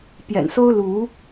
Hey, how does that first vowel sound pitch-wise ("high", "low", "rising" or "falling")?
low